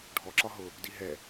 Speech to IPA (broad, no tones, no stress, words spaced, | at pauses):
ɖʱɔǁɒ ɦʊ | diɦɛ